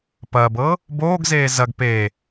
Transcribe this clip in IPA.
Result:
p ɐː b ɤː | b oː ɡ z eː z ɐ ɡ p eː

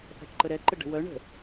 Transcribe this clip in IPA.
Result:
θ a̤ ʈ ǃ ə ɾ ɛ ǃ ə ɖ ə̤ w œ ɳ ə̤

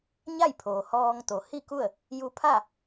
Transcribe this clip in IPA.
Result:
ɲ a˥˨ j pʰ oː˩ h ɔː˧ ŋ t̪ o˩˧ h i˥˨ k u˥˨ ə̯ | j u˧ pʰ a˥˨

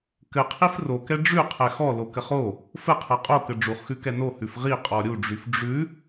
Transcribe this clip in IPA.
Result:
k ɘ qʰ i f r o k ɛ ɖ͡ʐ ʉ qʰ ɛ x ɔ l o k ɘ χ o | f ɘ qʰ ɜ qʼ o k ɘ ɖ͡ʐ u χ x ʉ k ɛ n o h ʉ f ʁ i qʼ ɔ ɾʲ u ɖ͡ʐ y f ɖ͡ʐ ʉ

